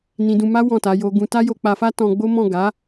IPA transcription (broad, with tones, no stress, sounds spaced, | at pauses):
n ĩ˧ d ũ˧ m a˦ w ɔ̃˦˨ t a˨˦ j o˧ ɡ ũ˧ t a˦ j o˧ k͡p a˧ f a˦ t ɔ̃˧ ɡ͡b o˦ m ɔ̃˦˨ ɡ a˨˦